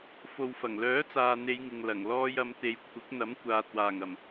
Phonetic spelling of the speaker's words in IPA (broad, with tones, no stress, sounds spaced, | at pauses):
f o˨ w f ɐ˨˩ ŋ l œː˨˥ t͡s aː˨ n̪ e˨˧ j ŋ ɪ˨ ŋ l ɐ˨˩ ŋ l ɔː˧ j ɐ˨˧ m t̪ e˨ j kʷʰ ɪ˨˥ k̚ n̪ ɐ˨˥ m kʷ aː˨ t̚ w aː˨˩ ŋ ɐ˨˩ m